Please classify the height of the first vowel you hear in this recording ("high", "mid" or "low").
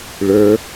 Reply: mid